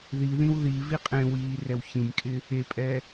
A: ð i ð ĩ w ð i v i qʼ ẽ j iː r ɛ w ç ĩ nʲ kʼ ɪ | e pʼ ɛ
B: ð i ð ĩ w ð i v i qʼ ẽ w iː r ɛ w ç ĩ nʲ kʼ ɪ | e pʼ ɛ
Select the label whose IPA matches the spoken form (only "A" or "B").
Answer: B